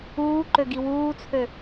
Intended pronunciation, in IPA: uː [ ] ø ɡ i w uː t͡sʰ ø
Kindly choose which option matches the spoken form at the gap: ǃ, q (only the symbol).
ǃ